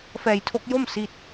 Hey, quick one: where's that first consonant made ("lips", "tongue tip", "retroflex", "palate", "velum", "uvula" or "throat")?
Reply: lips